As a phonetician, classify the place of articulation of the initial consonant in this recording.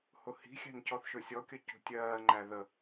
glottal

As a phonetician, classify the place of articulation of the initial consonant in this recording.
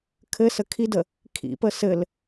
velar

